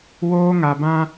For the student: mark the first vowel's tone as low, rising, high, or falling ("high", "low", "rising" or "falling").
high